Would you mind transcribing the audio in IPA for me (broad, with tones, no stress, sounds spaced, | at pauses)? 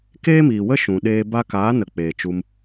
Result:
k eː˦ m iː˨ w ə˦ ʃ ũ˨ ɗ eː˧ b a˧ k aː˨˦ n ə˨ k͡p eː˨ t͡ʃ u˧ m